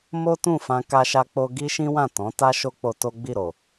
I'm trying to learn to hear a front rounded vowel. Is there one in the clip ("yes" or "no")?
no